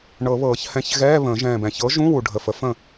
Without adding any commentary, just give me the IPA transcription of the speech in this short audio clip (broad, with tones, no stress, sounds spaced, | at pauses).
ɳ ɤ˨˩˦ β ɤː˨˩˦ ç h ɛ̃˨˥ ç ɣ ɛː˧˥˧ β ə̃ː˨˩˦ ʒ ɛ̃ː˧˩ b ɛ̃˨˩˦ ç ɤ˨˥ ʒ ũ˧˥˧ w u˧˩ ɖʱ ə˧˩ f ə˨˥ f ə̃˥˩